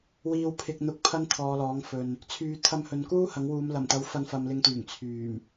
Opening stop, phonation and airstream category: aspirated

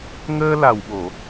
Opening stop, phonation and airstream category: implosive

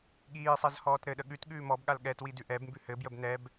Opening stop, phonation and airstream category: implosive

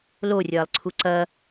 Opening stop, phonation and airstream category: click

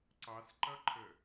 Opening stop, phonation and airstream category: click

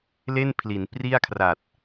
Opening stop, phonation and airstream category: aspirated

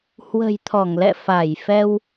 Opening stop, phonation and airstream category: aspirated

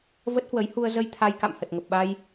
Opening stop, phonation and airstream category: plain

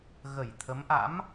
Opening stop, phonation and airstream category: aspirated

